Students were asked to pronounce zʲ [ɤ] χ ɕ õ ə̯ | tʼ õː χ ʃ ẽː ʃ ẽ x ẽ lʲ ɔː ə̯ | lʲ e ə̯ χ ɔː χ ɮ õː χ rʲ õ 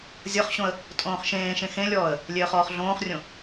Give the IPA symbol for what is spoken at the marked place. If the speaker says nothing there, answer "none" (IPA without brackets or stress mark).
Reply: ɤ